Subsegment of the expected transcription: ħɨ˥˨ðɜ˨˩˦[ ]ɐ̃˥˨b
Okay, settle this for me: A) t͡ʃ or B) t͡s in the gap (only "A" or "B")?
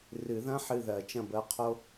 A